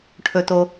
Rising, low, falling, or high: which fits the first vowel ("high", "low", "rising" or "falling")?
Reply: low